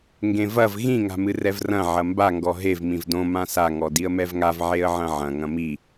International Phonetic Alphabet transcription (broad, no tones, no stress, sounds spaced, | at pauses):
ŋ ɡ ẽ v ɐ v ɣ ĩ ŋ a̤ m ɨ r ɛ v r ɐ̃ ʕ ɐ m b a ŋ ɡ ɔ ɦ e v m ĩ v d õ m ã s a ŋ ɔ d i ə̯ m ɛ v ŋ a v ʕ e ə̯ ʕ ɐ̃ ʕ ɐ̃ ŋ ɐ̃ m i